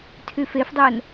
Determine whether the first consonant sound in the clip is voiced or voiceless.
voiceless